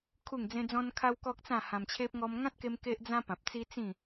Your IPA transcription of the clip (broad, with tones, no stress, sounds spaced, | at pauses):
kʰ u˥˧ ŋ d͡z ẽ˦ d͡z ɔ̃˦ n kʰ a˦ w k ɔ˦ k̚ t͡s ã˥˧ h ã˧ m t͡ɕʰ e˦ p̚ ŋ ɔ˧ m ŋ ã˦ t̚ k e˧ m k e˦ ʔ d͡z ã˦ p ã˨ p̚ t͡s i˦ t͡s ĩ˥˧